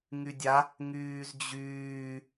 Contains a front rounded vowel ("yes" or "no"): yes